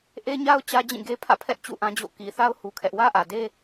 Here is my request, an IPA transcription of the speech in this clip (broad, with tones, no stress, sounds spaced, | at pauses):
ʔ e˦ ɲ a˦ ʊ̯ t͡ɕ ä˦ d͡ʑ ĩ˦˨ ɡ e˦ pʰ ä̰˦˨ pʰ ɛ˦ ʔ t͡ɕ ṵ˦˨ ʔ ã˦ d͡ʑ o̰˦˨ k i˨ θ a˦ ʊ̯ h u˦ kʰ ɛ˦ ʔ w ä˦ ʔ ä˨ d e˦